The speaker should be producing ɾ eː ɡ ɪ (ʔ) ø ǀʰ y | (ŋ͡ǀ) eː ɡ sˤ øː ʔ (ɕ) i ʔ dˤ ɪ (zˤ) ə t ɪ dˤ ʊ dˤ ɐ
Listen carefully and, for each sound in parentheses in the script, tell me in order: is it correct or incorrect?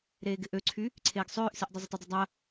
correct, incorrect: ǀʰ, incorrect: s, correct

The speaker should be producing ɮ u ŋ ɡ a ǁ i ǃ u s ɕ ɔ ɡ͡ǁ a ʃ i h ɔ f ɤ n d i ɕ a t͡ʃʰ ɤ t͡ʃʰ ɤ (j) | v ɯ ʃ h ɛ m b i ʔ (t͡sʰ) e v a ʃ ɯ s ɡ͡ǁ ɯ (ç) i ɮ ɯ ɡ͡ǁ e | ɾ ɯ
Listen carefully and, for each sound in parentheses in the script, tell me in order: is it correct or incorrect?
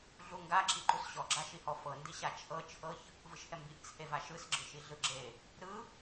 incorrect: ç, correct, incorrect: ʃ

